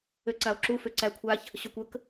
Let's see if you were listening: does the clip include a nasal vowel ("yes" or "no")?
no